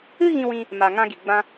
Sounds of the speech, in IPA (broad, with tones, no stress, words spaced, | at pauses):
ɨ˦ ɣĩ˧wĩ˧ | ma˨ ŋã˧ɡi˨ ɡ͡bã˧